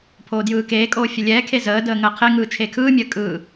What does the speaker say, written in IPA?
pʰ oː d j ɯː k eː kʼ oː fʲ ə lʲ ɛː kʰ e z əː d əː ŋ əː qʰ e ŋ ɯː t͡ʃʰ e kʰ ɯː mʲ əː kʼ ɯː

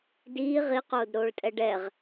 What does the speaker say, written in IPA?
d iː ʁ i q oː d ɾ oː ɭ tʼ ɛ ɖ ɛ ʁ

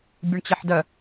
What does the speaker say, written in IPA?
bʲ u ɳ t͡ɕ ɪ ħ d œ

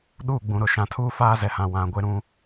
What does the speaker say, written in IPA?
ɗ uː˦˨ ɡ͡b ũ˨ ɾ ʊ˨ ʃ ã˨ tʰ uː˦ f aː˦ z ɛ˨ h ã˨ w ã˨ ɡʷ e˦ ɾ ũ˦

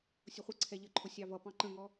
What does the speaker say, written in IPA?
sʲ ʊ χʷ ə ǀʰ ɛ ʎ ə ǃʰ ʊ sʲ ɑ v ʌ p ɑ̃ ǃ ə̃ ŋ ɔ

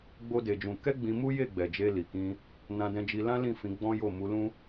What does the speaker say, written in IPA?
ɡ͡b o˦ d e˧ d͡ʒ ũ˧ k ɛ˦ ɡ͡b ĩ˧ m u˦ j e˦˨ ɡ͡b ɛ˨ d͡ʒ e˧ l i˨ k ĩ˧ | n ã˧ d ɛ̃˧ d͡ʒ i˧ l ã˦ l ĩ˦˨ f ĩ˨˦ ɡ͡b ɔ̃˦ j o˦˨ m u˨˦ l ũ˦

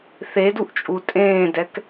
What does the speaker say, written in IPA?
θ e d u ʔ t͡ʃʼ u tʼ ẽː d ɛ k

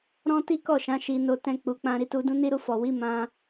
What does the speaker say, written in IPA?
ɾ ɔ̃˦ t i˦ k ɔ˦˨ ʃ ã˨˦ ʃ i˧ n o˧ t ɛ̃˧ k͡p u˨ k͡p ã˧ ɾ i˧ t u˧ d ũ˦ n i˦ ɾ u˧ f ɔ˨ w i˨˦ m ã˧

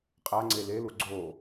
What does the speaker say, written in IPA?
qʼ a ŋ͡ǀ e l e l u ɡ͡ǀ o

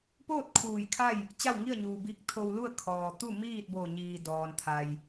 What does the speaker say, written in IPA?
p oː˥˨ t̚ kʰ uː˧˩ j kʰ a˥˨ j | t͡ɕ a˥˨ w ŋ i˥˨ ə̯ ɲ uː˩ b i˧ k̚ t̪ʰ o˧ w l u˥˨ ə̯ kʰ ɔː˩ t̪ u˥˨ m iː˥˨ t̚ b o˧˩ ɲ iː˩ d ɔː˩ n t̪ʰ a˩ j

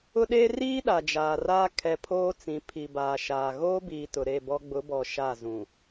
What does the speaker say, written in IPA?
ʊ˦ ɗ eː˦ r iː˦ ɗ a˨ d͡ʒ aː˨ r aː˦ kʰ ɛ˨ pʰ oː˦ t͡s ĩ˨ pʰ i˨ b aː˨ ʃ aː˨ ɣ oː˦ b iː˨ t ʊ˨ ɾ e˦˨ b ɔ˦ ɡ͡b ʊ˨˦ b ɔ˨ ʃ a˦˨ z ũ˨

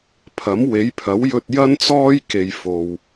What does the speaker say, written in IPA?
pʰ ɐ˨˥ m w e˨˥ j pʰ ɐ˨˥ w j ɵ˧ t̚ j ɐ˥ n t͡s ɔː˥ j k e˨ j f o˨ w

